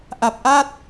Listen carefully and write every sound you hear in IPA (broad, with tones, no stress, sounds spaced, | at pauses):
ʔ a˨˩ p̚ ʔ a˥˩ t̚